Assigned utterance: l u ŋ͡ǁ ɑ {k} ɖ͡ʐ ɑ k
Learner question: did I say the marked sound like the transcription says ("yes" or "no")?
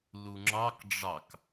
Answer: yes